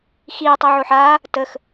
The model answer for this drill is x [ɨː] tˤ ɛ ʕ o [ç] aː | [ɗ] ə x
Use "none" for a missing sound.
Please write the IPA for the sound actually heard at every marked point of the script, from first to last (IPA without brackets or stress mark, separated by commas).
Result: iː, ħ, t